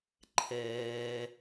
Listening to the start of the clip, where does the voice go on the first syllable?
low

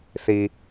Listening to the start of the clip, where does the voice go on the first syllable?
low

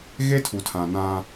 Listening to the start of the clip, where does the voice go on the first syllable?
high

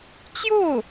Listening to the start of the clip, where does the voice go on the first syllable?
falling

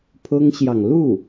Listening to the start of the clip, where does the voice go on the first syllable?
high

